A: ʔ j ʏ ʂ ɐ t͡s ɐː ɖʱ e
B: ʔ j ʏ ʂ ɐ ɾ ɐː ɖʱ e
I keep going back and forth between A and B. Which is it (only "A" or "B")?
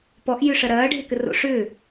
B